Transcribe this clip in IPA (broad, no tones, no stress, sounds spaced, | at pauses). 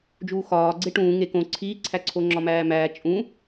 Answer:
d͡ʒ uː x ɒː ɡ͡ǀ e ʈ ũː ŋ e k õ ǀʰ iː ǀʰ æ ǀʰ o ŋ͡ǁ ɒ m æː m æː t͡ʃʼ ũ